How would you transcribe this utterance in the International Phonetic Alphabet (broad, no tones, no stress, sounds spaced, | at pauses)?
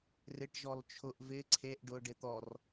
r ɪ ʈ ʒ ɔ l t͡ʃʰ ʊ ʔ v ɪ ǀʰ e ʔ ɖ ʊ ɖ ɪ t̪ ɔ r